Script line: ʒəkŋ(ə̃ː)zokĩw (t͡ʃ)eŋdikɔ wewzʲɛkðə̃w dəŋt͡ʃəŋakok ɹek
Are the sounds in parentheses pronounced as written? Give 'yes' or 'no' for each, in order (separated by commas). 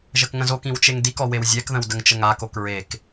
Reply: no, yes